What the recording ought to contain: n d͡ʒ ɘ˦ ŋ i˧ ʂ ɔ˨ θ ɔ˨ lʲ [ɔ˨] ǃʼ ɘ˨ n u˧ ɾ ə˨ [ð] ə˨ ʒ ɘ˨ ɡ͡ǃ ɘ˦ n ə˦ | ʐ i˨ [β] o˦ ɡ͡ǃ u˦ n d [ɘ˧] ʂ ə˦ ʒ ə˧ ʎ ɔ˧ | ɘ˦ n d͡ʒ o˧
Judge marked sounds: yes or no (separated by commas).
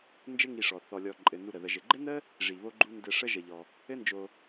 yes, yes, yes, yes